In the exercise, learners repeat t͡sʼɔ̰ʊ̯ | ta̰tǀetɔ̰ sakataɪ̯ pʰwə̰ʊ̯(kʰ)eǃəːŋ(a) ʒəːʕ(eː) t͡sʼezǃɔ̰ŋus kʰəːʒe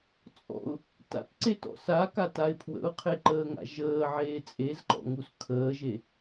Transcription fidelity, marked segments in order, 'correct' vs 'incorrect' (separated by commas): incorrect, incorrect, correct